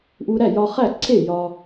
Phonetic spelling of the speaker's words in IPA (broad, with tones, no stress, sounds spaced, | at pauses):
ʔ u˧ ɾ æ˥˩ j ɒ˧ χ æ˥˩ ǀʰ e˥˩ j ɒ˧